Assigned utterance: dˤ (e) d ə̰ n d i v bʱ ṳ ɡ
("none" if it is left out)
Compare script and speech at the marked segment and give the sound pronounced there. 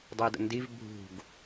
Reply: i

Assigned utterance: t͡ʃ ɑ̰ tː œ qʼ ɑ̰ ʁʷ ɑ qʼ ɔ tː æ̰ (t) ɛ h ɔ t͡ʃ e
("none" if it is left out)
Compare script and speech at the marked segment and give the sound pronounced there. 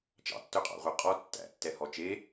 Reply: tː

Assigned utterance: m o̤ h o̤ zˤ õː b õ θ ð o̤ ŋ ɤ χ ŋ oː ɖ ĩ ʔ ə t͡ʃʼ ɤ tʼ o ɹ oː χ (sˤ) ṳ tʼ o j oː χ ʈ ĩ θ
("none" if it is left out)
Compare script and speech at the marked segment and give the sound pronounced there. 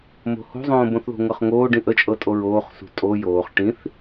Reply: s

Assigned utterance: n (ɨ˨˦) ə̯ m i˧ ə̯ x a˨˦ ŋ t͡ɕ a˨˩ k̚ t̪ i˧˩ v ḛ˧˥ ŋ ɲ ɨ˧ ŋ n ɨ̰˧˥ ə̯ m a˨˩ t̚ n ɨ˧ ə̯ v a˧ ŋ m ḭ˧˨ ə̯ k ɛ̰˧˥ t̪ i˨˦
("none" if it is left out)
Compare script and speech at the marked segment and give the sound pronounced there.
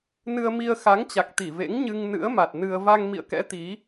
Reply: ɨ˧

